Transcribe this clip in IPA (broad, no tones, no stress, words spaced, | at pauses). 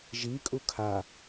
ʒi kʼukʰa